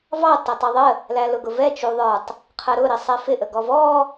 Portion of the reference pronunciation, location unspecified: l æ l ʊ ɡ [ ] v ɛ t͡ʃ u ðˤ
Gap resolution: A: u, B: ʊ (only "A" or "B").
B